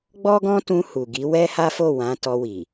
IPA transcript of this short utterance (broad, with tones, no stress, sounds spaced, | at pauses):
ɡ͡b ɔ˦ ɡ ɔ̃˦ t ũ˧ h u˨ ɡ i˨˦ w ɛ˦ h a˦ f o˦˨ w ã˨˦ t ɔ˧ w i˨